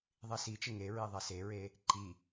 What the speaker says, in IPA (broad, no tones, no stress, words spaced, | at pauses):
ðˤisit͡ʃɪ ŋeɹi ðˤeseɹe | ǃi